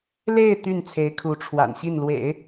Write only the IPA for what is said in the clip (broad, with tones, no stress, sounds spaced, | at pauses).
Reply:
l e˥˧ ɪ̯ t̪ y˥˩ n t͡sʰ e˧˥ ɪ̯ kʰ u˧˥ ʈ͡ʂʰ w a̰˨˩ n ɕ i˥˩ n l w ḛ˨˩˦ ɪ̯